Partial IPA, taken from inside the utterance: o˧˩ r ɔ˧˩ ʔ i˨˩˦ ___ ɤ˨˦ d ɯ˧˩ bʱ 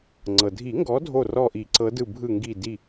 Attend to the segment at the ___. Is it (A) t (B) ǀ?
B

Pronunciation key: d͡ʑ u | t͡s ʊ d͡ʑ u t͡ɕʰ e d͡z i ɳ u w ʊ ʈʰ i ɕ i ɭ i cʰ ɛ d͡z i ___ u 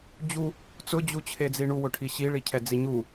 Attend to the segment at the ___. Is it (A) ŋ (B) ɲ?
B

